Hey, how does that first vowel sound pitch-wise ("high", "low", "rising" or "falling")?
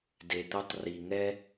low